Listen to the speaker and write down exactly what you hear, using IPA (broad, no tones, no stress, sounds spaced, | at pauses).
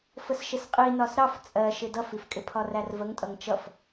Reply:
f ə s ʃ ɪ s qʼ i n ɒ s ɾ ɑ f t͡sʼ ɜ ʃ ɪ d ʌ f i f kʼ ɪ pʰ ɒ r æ r v ə ŋ tʼ ʌ ŋ t͡ʃ ʌ f